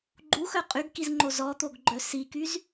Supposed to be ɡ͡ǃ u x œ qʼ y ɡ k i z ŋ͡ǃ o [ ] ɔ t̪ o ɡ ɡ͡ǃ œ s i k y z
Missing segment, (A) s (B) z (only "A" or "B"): B